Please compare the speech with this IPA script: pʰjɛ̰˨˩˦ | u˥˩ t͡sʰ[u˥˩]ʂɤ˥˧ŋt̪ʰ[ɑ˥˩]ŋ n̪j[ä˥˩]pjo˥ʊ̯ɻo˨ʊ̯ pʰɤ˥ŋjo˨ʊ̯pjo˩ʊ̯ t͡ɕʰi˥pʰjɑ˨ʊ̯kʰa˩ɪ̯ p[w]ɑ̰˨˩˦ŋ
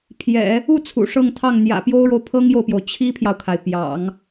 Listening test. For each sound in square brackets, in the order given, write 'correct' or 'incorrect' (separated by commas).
incorrect, correct, incorrect, incorrect